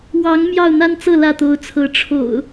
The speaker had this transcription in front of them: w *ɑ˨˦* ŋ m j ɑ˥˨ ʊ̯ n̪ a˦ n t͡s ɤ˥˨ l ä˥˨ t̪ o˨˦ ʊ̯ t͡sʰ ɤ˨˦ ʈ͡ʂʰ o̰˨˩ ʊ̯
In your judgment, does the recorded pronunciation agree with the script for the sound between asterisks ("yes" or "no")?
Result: yes